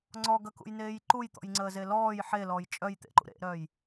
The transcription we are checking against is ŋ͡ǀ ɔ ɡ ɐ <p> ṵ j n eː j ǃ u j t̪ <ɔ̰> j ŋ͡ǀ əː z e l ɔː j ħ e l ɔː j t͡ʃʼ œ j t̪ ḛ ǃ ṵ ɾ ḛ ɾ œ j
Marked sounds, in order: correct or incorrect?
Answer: incorrect, correct

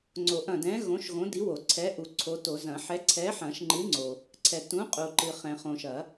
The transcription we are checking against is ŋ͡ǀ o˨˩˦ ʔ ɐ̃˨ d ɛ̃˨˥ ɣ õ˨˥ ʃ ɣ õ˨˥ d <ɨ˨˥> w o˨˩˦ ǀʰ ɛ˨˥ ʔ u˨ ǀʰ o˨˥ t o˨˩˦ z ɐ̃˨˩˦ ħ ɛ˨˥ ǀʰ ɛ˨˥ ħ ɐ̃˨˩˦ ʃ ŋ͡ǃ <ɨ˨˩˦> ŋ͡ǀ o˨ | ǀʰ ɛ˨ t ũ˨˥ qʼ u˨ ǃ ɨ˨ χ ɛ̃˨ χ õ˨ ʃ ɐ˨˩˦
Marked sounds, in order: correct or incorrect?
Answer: incorrect, incorrect

